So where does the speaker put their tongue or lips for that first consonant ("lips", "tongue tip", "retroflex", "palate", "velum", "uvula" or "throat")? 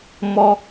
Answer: lips